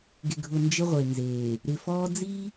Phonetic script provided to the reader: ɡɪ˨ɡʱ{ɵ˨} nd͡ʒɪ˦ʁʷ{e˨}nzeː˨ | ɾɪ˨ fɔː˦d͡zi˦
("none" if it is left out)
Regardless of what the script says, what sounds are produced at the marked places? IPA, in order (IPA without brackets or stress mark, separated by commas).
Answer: ʊ˨, e˨